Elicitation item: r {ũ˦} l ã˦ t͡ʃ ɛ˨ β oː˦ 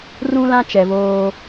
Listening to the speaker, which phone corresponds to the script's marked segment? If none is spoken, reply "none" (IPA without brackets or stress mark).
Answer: ũ˦